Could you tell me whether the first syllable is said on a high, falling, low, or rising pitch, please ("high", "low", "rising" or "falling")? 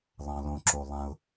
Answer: low